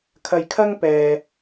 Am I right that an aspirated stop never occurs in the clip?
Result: no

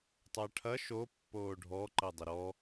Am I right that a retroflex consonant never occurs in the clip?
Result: no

